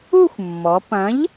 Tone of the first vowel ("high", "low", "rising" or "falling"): falling